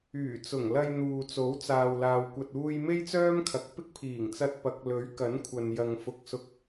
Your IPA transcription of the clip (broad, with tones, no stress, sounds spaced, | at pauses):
yː˨˩ t͡s ʊ˨˩ ŋ l ɐ˧ j n̪ uː˨ t͡s o˨˥ w t͡s aː˨ w l aː˨ w kʷ ɐ˨ t̚ uː˧ j m e˥ j t͡s œː˥ m kʰ ɐ˨ k̚ p ɪ˥ k̚ pʰ iː˨˩ ŋ t͡s ɐ˧ t̚ p ɐ˨˥ k̚ l ɵ˨˥ ɥ k ɐ˨˥ n kʷʰ ɐ˨ n j ɐ˨ ŋ f ʊ˧ k̚ s ʊ˧ k̚